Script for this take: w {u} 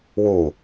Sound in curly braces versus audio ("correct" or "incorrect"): correct